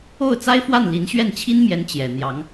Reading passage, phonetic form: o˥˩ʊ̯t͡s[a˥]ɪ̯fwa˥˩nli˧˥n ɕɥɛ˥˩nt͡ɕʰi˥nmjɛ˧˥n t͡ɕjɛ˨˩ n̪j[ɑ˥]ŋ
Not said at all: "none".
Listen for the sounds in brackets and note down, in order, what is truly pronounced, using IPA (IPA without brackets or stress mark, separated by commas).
a˥, ɑ˧˥